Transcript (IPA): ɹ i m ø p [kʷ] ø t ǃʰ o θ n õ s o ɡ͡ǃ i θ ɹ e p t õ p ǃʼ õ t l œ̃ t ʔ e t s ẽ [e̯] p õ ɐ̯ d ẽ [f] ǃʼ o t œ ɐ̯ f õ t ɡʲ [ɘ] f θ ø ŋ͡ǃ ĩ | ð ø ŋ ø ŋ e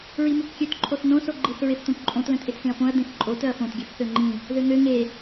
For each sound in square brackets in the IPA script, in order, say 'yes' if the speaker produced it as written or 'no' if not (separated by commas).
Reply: no, no, no, no